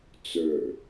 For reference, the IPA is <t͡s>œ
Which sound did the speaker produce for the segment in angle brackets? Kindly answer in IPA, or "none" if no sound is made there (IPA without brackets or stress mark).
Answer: t͡s